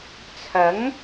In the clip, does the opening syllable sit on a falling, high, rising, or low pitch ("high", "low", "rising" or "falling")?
rising